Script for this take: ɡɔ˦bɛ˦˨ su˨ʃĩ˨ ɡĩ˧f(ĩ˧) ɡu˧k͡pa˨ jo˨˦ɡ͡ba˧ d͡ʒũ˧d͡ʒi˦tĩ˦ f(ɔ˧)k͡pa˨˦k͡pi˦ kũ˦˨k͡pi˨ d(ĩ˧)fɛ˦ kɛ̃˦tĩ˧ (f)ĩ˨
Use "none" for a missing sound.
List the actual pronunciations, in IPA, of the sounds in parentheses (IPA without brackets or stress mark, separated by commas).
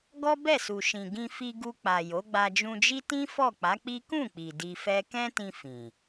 i˧, ɔ˦˨, i˧, f